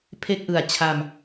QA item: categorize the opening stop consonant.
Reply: aspirated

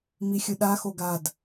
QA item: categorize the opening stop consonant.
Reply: implosive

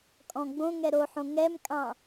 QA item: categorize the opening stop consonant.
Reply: ejective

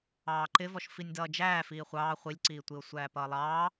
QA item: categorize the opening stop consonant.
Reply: click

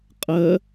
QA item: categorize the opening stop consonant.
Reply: ejective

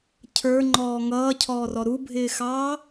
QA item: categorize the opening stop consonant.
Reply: aspirated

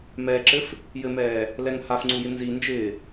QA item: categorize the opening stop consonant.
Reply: click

